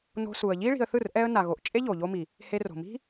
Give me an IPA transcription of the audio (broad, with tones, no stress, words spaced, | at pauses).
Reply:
no̤˧ su˨ə̯ʎi˦ ɭi̤˧ə̯θɯ˦˨r ʔɛ˧ə̯ na˨ɣo˨ʔ t͡ʃʼe˦ʎo˨ʎo˧mi˨ | he˧ro̤˨mi̤˦